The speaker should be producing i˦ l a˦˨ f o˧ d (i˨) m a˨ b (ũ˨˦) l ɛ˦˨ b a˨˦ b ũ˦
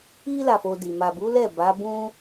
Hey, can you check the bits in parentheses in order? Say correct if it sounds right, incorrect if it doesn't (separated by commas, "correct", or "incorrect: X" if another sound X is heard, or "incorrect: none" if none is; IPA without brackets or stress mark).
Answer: correct, incorrect: u˨˦